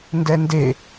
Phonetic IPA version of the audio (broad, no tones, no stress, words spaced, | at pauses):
ndɛnde